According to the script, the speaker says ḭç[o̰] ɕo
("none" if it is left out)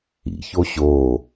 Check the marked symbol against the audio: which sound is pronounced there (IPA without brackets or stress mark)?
o